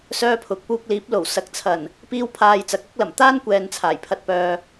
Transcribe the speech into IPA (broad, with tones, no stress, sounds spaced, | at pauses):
s œː˥ pʰ ʊ˨˥ k̚ p uː˧ k̚ l iː˨˥ p̚ l o˨˩ w s ɐ˨˥ k̚ t͡sʰ ɐ˨˩ n | p iː˥ w pʰ aː˧ j t͡s ɐ˨˥ k̚ ɐ˥ k̚ l ɐ˨˩ m t̪ aː˥ n kʷ ɛː˨ n t͡sʰ aː˨˩ j pʰ ɐ˧ t̚ p œː˨